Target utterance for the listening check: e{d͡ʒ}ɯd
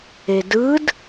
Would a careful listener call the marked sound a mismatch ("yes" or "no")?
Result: yes